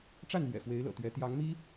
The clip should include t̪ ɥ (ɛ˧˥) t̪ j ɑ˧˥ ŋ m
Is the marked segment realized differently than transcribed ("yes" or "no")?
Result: no